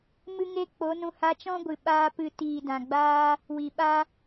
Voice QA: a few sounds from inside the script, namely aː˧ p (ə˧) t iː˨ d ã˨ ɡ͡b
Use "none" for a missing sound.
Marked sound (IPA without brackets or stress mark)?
ɨ˧